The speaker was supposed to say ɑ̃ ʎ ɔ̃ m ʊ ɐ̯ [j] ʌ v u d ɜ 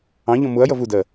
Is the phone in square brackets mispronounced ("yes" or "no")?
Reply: no